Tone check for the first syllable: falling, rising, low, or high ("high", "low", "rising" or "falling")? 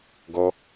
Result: high